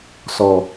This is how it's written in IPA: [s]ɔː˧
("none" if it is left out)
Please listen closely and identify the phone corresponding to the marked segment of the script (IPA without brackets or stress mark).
s